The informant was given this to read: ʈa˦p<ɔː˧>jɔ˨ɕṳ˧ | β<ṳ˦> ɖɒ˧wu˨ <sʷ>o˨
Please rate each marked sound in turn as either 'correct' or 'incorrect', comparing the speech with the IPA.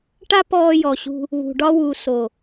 correct, incorrect, incorrect

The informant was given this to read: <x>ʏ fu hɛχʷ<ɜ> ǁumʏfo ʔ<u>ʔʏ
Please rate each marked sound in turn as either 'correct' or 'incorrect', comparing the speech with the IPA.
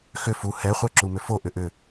correct, incorrect, incorrect

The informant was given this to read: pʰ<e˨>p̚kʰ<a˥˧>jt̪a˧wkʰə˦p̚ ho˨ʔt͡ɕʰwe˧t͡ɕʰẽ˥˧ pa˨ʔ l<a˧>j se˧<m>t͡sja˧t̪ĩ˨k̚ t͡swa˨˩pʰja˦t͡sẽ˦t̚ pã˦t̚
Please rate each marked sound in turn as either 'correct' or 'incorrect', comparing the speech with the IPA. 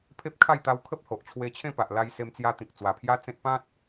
incorrect, correct, correct, correct

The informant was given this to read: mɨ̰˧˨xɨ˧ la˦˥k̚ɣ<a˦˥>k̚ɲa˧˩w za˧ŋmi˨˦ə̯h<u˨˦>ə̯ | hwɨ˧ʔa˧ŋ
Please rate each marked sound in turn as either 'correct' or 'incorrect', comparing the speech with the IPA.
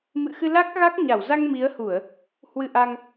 correct, incorrect

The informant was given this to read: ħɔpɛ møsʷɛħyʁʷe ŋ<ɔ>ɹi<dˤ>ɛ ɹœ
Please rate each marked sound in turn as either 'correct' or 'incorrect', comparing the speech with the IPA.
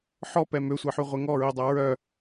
correct, correct

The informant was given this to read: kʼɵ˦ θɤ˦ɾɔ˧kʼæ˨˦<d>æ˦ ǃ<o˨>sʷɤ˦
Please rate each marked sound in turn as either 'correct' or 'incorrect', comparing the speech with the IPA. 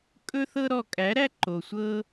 incorrect, correct

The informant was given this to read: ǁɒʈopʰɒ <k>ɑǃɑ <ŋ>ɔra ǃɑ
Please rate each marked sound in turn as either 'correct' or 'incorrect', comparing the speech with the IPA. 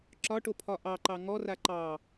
incorrect, correct

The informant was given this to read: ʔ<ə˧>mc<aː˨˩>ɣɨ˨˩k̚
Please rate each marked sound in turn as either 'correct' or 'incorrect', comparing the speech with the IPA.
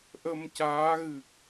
correct, incorrect

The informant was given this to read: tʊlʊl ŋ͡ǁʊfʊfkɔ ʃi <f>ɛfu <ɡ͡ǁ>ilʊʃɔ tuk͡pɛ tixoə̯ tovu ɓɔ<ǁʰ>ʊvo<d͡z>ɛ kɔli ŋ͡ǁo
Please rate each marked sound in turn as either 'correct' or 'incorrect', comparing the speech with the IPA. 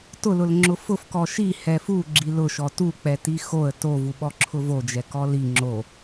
incorrect, correct, correct, incorrect

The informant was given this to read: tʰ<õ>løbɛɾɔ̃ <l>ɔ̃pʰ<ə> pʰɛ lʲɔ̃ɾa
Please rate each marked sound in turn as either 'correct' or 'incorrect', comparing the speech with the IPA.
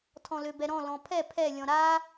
incorrect, correct, incorrect

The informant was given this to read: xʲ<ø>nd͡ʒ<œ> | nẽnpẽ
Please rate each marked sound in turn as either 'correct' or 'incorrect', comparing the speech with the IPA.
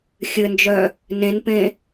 incorrect, correct

